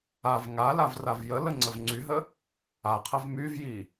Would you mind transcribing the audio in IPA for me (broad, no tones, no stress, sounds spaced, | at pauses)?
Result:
a v ŋ a l a v r a v j ə l ə ŋ͡ǀ ə v ŋ͡ǀ y ɦ ə | a qʰ ə v m y v j i